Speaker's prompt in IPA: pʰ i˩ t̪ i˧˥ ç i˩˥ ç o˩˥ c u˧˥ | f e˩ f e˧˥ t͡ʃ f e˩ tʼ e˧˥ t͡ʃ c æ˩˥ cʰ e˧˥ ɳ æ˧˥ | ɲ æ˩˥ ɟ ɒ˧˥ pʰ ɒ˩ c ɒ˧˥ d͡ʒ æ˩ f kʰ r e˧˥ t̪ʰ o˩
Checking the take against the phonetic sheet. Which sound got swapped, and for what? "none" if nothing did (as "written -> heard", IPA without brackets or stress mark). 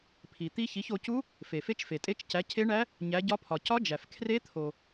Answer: none